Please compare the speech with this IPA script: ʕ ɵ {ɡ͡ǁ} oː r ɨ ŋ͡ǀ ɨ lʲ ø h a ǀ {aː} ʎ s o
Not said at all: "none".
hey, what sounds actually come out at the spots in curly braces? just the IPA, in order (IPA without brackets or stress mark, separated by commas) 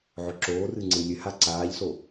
ǁ, aː